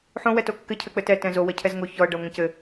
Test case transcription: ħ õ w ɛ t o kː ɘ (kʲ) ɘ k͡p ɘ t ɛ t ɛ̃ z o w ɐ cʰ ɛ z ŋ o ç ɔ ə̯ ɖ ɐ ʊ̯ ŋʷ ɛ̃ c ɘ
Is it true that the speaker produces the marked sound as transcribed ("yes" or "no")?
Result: no